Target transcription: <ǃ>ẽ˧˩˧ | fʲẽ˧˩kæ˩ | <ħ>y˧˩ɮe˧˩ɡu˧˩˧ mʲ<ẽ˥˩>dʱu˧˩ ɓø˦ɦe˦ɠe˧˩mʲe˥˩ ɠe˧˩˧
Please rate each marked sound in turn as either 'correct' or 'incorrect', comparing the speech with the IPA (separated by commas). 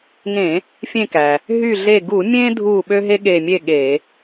incorrect, incorrect, incorrect